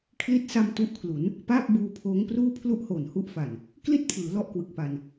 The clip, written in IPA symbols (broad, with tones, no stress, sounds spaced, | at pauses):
kʰ l i˦˥ t̚ s a˧ m t u˦˥ ʔ kʰ l u˩˦ n | p aː˥˩ p̚ b uː˧ pʰ oː˦˥ ŋ p r uː˥˩ pʰ l u˥˩ ʔ h oː˨˩ n h u˦˥ ʔ f a˨˩ n | k l i˥˩ t̚ pʰ ɯː˩˦ l ɔ˦˥ ʔ k w ɯ˨˩ k̚ p a˧ n